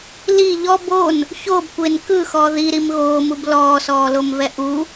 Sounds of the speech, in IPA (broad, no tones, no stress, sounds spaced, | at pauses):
l i ʎ ɔ b o n | ç o b kʷ e n k ɯ x ɔ ð i ɾ i m ɣ oː m u b l ɔː s ɔː l o m v ɛ ʔ u